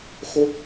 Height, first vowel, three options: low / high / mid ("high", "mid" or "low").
mid